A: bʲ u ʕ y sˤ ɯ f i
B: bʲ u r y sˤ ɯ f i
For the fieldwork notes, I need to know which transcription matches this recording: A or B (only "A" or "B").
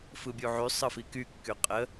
A